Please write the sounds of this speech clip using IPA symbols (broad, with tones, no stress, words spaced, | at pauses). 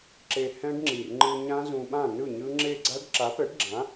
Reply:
ǁe˧hɛ̃˦˥ɖŋ͡ǁi˨˩r ŋ͡ǃɯ˧ɲã˦˥ zũ˧ɓã˥˨nɯ˥˨ɲɯ˦˥ ŋ͡ǁe˥˨ ɡ͡ǀa˦˥ɖ ǁa˨˥pɛ˨˥ɖɡ͡ǁã˨˥